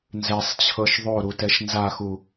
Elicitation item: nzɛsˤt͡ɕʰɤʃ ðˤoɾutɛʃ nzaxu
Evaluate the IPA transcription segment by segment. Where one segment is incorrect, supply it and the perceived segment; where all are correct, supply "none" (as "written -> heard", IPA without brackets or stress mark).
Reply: none